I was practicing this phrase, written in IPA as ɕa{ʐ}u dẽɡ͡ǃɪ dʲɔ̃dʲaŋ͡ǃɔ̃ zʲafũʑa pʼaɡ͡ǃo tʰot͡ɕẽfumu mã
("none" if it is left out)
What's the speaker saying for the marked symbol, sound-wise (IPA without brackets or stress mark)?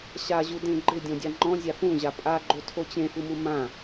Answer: ʑ